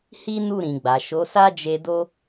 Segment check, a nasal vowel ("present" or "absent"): present